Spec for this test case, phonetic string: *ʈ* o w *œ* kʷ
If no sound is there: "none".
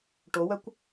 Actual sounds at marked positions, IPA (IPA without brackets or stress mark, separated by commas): ʈ, œ